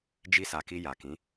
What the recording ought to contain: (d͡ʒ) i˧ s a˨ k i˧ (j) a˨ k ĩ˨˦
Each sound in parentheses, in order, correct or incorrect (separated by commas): correct, correct